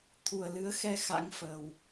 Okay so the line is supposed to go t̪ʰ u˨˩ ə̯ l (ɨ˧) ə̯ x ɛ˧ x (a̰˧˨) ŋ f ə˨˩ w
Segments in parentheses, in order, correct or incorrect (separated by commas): incorrect, incorrect